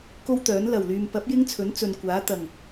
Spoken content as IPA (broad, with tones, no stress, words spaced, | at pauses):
ko˥wt̪œː˨˥n lɐ˨˩wlyː˨m pɐ˨˥p̚ jɪ˥ŋt͡sʰɵ˨˥n t͡sɵ˨nkʷaː˨˥ t̪ɐ˨˩ŋ